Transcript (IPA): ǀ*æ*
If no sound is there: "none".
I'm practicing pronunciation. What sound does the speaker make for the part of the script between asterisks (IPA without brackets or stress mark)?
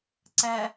æ